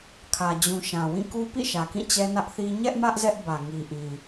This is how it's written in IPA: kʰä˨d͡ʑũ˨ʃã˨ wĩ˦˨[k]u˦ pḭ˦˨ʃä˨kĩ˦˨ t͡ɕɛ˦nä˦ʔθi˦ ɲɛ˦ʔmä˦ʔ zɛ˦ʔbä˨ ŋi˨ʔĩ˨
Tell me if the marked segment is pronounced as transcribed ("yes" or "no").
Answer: yes